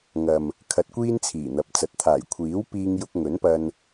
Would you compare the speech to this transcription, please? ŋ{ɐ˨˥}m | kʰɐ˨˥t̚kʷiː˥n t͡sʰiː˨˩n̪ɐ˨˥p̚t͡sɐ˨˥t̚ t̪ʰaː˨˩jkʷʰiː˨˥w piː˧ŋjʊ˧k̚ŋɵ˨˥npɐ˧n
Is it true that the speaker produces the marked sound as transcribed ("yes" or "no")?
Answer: no